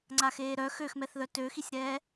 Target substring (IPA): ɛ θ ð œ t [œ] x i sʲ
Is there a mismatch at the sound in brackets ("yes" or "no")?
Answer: yes